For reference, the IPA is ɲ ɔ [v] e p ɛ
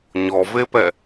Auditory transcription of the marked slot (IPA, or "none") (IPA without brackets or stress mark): v